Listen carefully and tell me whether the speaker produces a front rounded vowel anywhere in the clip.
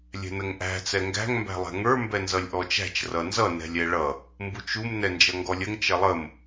no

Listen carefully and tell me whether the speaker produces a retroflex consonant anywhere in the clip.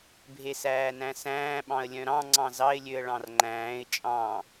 yes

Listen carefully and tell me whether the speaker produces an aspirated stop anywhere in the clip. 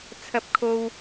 yes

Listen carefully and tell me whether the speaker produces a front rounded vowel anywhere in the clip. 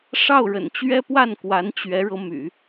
yes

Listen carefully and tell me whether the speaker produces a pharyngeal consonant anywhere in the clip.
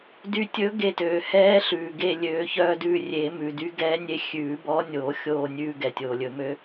no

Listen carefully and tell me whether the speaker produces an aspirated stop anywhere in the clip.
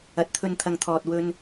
yes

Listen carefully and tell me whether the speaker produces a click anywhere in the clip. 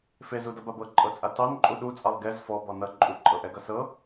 yes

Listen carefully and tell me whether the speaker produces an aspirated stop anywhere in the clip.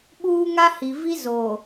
no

